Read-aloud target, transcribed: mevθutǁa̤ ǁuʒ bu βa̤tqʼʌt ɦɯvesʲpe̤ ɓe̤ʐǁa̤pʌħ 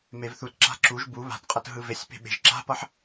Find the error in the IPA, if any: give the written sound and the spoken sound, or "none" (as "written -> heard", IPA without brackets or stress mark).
ʐ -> ʒ